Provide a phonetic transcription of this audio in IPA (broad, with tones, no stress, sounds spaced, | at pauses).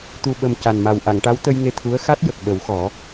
t̪ u˨˩ ɓ ə˨˩ m c a˨˩ n m a˨˩ w ʔ a˨˩˨ ŋ ʈ a˧˥ w t̪ ə˧ j ŋ e˧ t̪ʰ u˧˥ ə̯ x a˦˥ t̚ j ə˨˩ k̚ ɓ ə˨˩˦ w x ɔ˨˩˦